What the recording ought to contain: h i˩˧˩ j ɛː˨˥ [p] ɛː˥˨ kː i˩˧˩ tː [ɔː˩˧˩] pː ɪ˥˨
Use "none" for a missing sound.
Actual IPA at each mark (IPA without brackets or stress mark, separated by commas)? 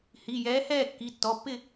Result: h, ɔ˩˧˩